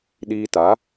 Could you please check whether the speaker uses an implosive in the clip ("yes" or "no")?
yes